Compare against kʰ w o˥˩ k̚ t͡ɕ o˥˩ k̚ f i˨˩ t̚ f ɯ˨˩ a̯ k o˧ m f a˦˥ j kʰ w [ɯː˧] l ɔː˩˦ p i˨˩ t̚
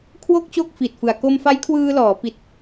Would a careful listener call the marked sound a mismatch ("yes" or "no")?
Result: no